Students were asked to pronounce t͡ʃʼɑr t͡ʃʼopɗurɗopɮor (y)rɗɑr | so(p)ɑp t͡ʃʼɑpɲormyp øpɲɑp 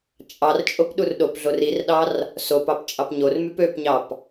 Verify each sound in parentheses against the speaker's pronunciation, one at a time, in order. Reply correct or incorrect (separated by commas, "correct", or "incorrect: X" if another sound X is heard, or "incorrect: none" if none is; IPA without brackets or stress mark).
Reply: incorrect: i, correct